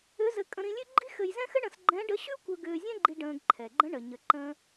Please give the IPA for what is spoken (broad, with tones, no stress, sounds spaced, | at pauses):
ʏ˧˥ z ɘ˧ kʼ ə̃˧ ɾ ĩ˧ lʲ ʉ˥ ɡ͡ǃ i˥ x ɘ˧ j z ɛ̃˥ x ɘ˥ ɳ ə̃˧ s ɡ͡ǃ ɛ̃˧˥ ɖ ə˧˥ ɕ ʉ˥ kʷ ə˧ ɡ ʏː˧ zʲ ɛ̃˥ ɡ͡ǃ i˧ ɖ ə̃ː˧ ɡ ǃʰ ɛ˩ ɡ͡ǃ ə̃˧˥ ɳ ə˩ ɲ ə˩˧ ǃ ə̃ː˧